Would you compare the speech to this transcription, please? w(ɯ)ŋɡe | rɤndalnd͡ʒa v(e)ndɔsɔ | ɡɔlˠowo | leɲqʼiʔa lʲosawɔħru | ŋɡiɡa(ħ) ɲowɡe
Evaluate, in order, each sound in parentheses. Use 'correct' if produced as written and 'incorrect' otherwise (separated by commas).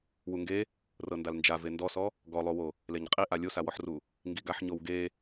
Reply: incorrect, correct, correct